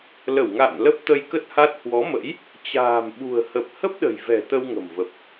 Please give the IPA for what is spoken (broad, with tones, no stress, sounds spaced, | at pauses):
l ə˧˩ w ŋ a̰ː˧˨ n l ə˦˥ p̚ t̪ ə˧ j k ə˦˥ t̚ h a˦˥ t̚ h w ɔ˨˦ m ə̰˧˥ j | t͡ɕ a̤ː˨˩ m ɓ ṳ˨˩ ə̯ h ə˨˩ p̚ h ə˦˥ p̚ ɗ ə̤˨˩ j v ɛ̤˨˩ t̪ ə˧ w ŋ ə̤˨˩ m v ə˨˩ p̚